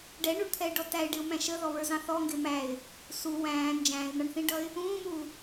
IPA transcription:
ɖɛɳuɳt̪ʰɛɪ̯ɖɔ tæɪ̯ɖɪʊ̯mæ̃ ʃəðɔβə˞zɑ̃ θɔŋɡɪ mæɪ̯ | su wæ̃ː nd͡ʒæ̃ːɪ̯n̪ɑɳθĩɖʌɪ̯ | ũːmuː

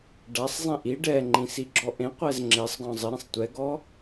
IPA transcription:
ɖasˤzˤĩ ʔi ɖɛŋ͡ǃĩ siɡ͡ǁɔʔẽqʷɛz ŋ͡ǁesˤɡɔ̃ zˤɪɾẽsˤ tʷɛɡɔ

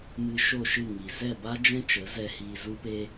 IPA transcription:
mɨ˧ʃo˦˨ʃɨ˦˨ ŋi˨ zɛ˦˨ba˦ d͡ʒɛ̃˦t͡ʃə˨˦zɛ˧ hiː˧zu˦pe˦

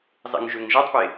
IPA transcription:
zˤḛŋʒøŋʒætˤpe

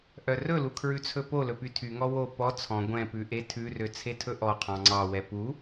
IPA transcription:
ʔœrɵlu kʰɹʉt͡sʰɵpolɵ pytʰyŋɔ wo pɔ t͡sʰɔ̃ ɡʷɛ̃pʉ ʔetʰʉrø t͡sʰetʰɵʔɔqʰɑ̃ ŋ͡ǀɑwɛ pu

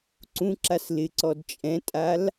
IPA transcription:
ǀũǁas lɪǀɔd t͡ʃʼɛ̃tʼal

